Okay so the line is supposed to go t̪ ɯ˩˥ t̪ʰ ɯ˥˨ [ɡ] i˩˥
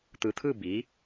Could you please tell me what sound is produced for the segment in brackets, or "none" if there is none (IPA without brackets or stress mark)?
b